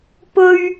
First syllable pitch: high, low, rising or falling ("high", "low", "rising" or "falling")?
low